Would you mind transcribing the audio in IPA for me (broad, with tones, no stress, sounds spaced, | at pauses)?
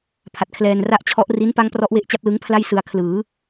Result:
pʰ a˨˩ t̚ kʰ l ɛː˧ n r a˥˩ ʔ t͡ɕʰ ɔ˦˥ ʔ r i˦˥ n p a˦˥ ŋ p r ɔ˦˥ ʔ w e˦˥ ʔ t͡ɕ a˦˥ p̚ l ɯ˦˥ ŋ pʰ l a˥˩ j s ɯ˧ a̯ kʰ l ɯː˩˦